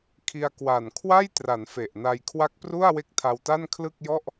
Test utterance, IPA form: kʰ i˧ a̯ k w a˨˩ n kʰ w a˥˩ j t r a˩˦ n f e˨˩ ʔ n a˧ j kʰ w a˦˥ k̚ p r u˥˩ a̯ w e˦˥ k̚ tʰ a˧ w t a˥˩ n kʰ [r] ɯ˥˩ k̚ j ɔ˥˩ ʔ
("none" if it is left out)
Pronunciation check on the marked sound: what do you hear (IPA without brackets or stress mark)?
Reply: l